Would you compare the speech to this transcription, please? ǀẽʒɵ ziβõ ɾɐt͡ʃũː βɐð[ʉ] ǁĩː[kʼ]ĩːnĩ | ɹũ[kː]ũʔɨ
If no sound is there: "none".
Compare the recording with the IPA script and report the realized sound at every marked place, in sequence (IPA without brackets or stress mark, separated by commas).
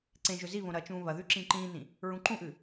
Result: ʉ, ǃ, ǃ